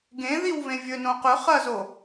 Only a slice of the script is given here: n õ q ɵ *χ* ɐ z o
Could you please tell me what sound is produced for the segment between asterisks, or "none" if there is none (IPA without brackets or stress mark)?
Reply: χ